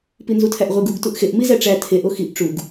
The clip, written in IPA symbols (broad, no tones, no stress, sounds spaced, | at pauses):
p i n z u tʰ æ ʔ ʁʷ e ɡ u ɡ t u ʔ x e ʔ m i z æ ʈ͡ʂ æ tʰ e ʔ o x i ʔ ʈ͡ʂ u ɡ